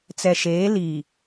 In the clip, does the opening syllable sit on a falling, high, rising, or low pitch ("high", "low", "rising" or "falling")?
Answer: low